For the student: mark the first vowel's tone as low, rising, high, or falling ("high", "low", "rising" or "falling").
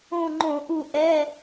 falling